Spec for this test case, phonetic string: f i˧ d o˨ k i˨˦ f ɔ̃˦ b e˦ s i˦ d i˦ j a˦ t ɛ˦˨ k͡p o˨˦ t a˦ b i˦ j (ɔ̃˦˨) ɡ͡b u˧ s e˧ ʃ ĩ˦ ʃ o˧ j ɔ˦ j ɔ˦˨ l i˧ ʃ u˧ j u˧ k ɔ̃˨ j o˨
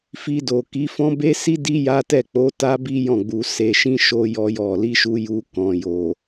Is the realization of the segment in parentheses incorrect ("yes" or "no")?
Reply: no